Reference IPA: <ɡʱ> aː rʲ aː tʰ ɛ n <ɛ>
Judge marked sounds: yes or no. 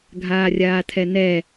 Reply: yes, yes

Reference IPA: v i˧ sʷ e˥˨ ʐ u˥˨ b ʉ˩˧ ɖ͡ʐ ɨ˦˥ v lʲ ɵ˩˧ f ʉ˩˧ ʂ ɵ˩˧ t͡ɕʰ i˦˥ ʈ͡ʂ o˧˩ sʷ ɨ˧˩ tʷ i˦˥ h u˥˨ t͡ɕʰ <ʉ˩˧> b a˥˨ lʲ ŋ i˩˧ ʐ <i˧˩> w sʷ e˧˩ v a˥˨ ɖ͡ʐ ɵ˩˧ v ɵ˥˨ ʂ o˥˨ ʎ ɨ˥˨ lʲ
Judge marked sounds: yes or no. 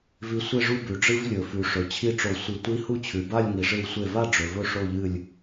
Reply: yes, no

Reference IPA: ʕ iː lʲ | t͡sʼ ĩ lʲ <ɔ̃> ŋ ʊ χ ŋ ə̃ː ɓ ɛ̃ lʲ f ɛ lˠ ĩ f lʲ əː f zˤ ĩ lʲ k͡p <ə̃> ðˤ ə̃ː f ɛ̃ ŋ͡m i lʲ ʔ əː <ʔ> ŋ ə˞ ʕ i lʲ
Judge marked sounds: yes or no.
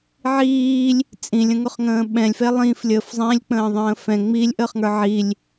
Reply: no, no, no

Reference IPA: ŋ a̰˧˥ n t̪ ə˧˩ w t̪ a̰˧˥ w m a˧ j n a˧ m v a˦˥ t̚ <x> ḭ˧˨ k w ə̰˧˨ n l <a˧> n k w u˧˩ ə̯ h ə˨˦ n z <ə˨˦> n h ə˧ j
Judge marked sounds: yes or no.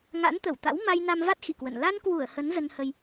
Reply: yes, yes, no

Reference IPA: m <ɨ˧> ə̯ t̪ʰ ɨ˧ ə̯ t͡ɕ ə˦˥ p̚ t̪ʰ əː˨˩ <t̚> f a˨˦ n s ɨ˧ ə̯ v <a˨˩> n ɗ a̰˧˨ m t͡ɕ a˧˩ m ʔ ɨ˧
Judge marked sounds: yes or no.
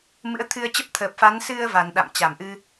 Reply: no, no, yes

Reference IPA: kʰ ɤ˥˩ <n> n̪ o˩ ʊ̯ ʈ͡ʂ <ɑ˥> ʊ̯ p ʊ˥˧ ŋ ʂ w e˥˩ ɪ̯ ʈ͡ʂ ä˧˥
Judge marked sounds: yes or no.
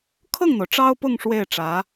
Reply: no, yes

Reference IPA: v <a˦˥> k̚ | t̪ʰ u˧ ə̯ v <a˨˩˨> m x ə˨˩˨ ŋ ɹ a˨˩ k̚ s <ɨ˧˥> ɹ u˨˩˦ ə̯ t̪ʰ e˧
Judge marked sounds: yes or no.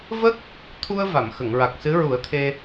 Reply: no, yes, yes

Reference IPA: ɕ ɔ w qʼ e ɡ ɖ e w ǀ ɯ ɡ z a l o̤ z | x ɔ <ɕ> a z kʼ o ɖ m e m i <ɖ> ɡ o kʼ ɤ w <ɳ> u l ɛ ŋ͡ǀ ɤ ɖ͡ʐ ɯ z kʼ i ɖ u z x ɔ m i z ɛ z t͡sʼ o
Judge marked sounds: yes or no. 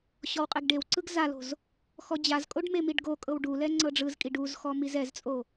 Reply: no, yes, no

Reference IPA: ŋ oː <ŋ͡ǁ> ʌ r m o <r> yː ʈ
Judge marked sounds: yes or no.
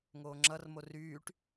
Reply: yes, yes

